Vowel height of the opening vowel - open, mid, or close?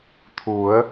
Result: close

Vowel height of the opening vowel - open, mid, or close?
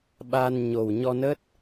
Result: open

